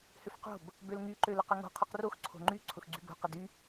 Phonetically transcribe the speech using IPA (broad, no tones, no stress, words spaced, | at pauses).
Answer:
hʏfqo̤b | bølŋy ǃølʊqʏŋo̤ qʰoqrox ǀʰo̤ŋ͡ǃy ǀʰʊxɡ͡ǀybo̤ qɪdy